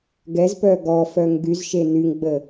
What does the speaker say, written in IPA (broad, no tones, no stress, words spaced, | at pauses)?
ɡɛzpœ ɡɔ fœŋɡyzʃe nyŋɡ͡bə